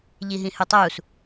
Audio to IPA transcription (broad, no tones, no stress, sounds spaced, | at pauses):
ʎ i ɦ ĩ h ʉ tˤ uː s